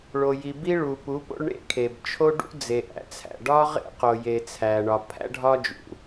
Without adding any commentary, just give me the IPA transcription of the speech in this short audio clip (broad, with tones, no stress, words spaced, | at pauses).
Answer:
ɭo˨ji˨bi˦ ɭu˨pu˨˦po̰˦ɭ ɳḛ˦kʰe˨bt͡ʃʰo˦ɖṵ˦ d͡ze˨ʔæ̰˨t͡sʰæ̰˨ ɖɒ˦ʁḛ˦qo˨je˨ t͡sʰæ˨ɳɒ˨pʰæ̰˦ ɖʱɒ˦d͡ʒṵ˨